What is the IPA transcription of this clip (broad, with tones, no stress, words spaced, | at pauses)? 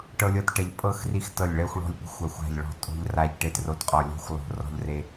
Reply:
ʈɤ˦lʲɤ˦t ʈɛ˦ʎ pʼɤ˦xri˦˨x tɤ˦˨lʲɭɛ˦xʷɭɔ̤˦lʲpe̤˦xʷ a˦˨xʷa̤˦˨ʎ ɭɔ̤˦˨ tʼo̤˦ʎ ra˦ʎʈe˦tro˦˨tqʼɔ˦˨ lʲɔ̤˦xʷ lˠo̤˦˨rɔ̤˦ʎre˦